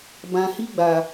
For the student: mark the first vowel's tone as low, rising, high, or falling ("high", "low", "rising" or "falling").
low